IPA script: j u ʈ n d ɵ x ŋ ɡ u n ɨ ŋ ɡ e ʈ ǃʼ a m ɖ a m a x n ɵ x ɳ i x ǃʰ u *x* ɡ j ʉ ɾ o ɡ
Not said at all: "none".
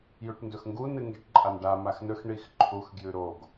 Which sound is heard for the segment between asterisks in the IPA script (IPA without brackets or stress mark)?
x